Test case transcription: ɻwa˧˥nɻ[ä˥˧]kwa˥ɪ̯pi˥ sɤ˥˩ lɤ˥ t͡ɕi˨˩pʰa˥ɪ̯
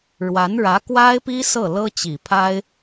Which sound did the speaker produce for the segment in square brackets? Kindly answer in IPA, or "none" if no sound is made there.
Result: ä˧˥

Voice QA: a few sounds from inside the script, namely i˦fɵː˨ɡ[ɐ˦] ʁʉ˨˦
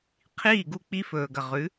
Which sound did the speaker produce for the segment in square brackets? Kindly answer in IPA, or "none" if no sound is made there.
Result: ɐ˨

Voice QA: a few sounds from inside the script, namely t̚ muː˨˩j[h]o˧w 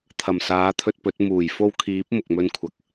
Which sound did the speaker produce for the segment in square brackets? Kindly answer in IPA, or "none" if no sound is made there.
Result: f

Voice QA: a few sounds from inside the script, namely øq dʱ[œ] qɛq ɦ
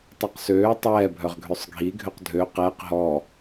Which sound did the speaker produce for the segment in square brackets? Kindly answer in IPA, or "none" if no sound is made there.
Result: ø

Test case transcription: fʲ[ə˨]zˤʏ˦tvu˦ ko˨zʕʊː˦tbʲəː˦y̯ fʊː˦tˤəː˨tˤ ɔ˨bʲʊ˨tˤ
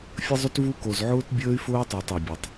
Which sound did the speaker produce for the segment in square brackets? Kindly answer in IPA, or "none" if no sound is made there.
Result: ə˦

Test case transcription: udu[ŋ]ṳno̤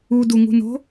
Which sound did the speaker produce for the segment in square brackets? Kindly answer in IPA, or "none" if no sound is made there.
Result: ŋ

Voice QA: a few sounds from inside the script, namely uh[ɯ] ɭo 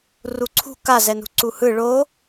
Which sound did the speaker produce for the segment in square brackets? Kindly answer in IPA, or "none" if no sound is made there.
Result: ɯ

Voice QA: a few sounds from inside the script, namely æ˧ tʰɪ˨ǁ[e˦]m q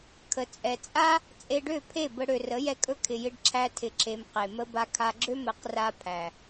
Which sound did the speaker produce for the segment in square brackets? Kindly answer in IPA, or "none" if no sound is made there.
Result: e˨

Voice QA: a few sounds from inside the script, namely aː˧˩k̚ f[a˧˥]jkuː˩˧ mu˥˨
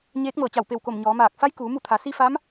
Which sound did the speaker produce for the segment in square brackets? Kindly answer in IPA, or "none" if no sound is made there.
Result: a˧˥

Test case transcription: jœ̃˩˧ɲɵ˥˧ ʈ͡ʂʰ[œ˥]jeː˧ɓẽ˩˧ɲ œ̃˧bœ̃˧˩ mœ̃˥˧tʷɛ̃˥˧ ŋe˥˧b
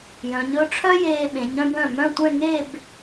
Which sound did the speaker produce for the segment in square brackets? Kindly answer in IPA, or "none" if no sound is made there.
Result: œ˥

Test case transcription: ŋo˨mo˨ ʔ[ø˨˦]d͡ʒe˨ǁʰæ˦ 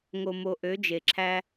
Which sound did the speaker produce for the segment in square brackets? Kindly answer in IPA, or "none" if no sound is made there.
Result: ø˨˦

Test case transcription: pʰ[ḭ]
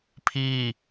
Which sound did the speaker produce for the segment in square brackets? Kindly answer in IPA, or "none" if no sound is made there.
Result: i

